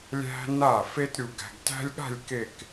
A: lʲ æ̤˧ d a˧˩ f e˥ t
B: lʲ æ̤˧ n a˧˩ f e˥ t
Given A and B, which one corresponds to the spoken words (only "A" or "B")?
B